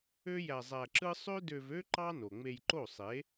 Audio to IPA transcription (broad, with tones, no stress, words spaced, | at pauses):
ø˦ jæ˧zˤæ˧ǁɯ˦ sˤø˦dø˧vø˦ ǃɑ˦ no˨ŋ͡me˧jǃo˦˨ sˤe˨˦